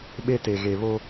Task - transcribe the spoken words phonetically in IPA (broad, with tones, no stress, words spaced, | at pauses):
ɓe˦te˨ɣe˨ βo˦